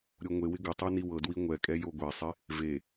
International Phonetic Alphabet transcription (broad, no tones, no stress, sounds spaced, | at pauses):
ɾʲ o ŋʷ e w ɪ ɡ ɪ tˤ ɤ n i w ɤ d w i ŋʷ ɛ kʼ ɛ j o ɡʷ ɛ sˤ ɪ | v e